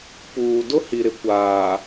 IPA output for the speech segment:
puː˨ dʊ˦hi˨ɾɪ˨ kʷaː˨

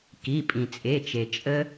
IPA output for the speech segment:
ki˩˧˩pʼĩ˩t͡sʼe˩˧˩t͡ʃe˩ t͡ʃʼə˧

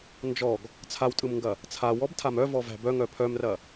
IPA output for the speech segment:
nd͡ʒɔɡ | t͡sʰawtʼɯmŋɡɐ | t͡sʰawɔbtʰam œvɔvæ̤ bœŋœ pʰœmrɐ

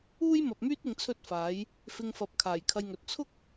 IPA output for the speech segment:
uː˥jmɐ˨p̚myː˥t̚ ɪ˧ŋt͡sʰɵ˥t̚faː˨˥j | fɪ˧ŋfɐ˨˥p̚ kʰaː˨˩jkʰɐ˧jŋɵ˨t̚ t͡sʰʊ˥k̚

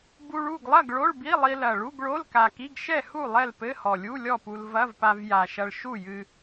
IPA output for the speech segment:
bu˧ɭ u˥˨ɡlˠɐ˥˨ɡ ɭo˧˥˧ɭbi˧˥˧lˠi˧lɐ˨˩ ɭu˧˥˧ɡɭo˧˥˧lka˨˩ki˧˥˧ɡ ʃɛ˥˨hu˥˨ lˠɛ˥˨lpɘ˧˥˧hɔ˨˩ lʲu˧˥˧lʲɔ˥˨pu˧l vɐ˧˥˧vpa˧vja˨˩ʃɐ˧ɭ ʃu˥˨jɨ˧

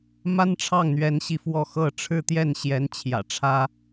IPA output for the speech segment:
ma˥nʈ͡ʂʰɑ˥˩ŋn̪ɥɛ˧˥nɕi˧ fwɔ˥˧xɤ˥˧ ʈ͡ʂʰɻ̩˥˧t̪jɛ˥˩nɕjɛ˧˥n t͡ɕʰjä̰˨˩ʈ͡ʂʰä˥

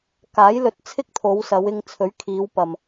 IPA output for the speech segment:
kaː˨˥jlɵ˨t̚t͡sʰɪ˥k̚ t̪ʰo˨˧wsɐ˨˧w ɪ˧ŋt͡sʰɵ˨˥ɥkʰiː˨˧wpɐ˨m

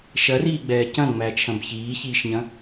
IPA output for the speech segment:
ʃɐriːɡ͡bɛː cɐ̃ŋ͡mæt͡ʃʰɐ̃b çiːçiːʃɲɐ̃

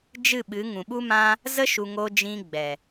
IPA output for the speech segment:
d͡ʒɨ˦˨ɓɨ˨˦ŋũ˨ ɓu˦mã˦ | zə˦ ʃu˧ ŋo˧d͡ʒĩ˧ɡ͡bɛ˨

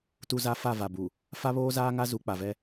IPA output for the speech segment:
tu˦za˦ fa˦˨va˨bu˨ | fa˦βoː˦zaː˦ŋa˦ zu˨˦k͡pa˨vɛ˦

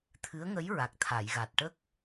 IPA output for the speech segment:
t̪ʰɨ˧˥ə̯ŋə˧˥j ɹa˨˩k̚t̪ʰa˨˩˨jɣa˨˩t̚ ʈə˦˥k̚

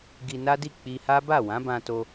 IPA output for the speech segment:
ɡi˧na˦di˦˨ k͡pi˧ha˦ ba˦˨wã˨˦bã˧to˧

